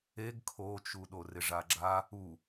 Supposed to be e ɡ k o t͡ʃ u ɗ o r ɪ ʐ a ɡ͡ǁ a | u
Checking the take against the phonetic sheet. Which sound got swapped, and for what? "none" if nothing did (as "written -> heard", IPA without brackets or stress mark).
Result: k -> kʰ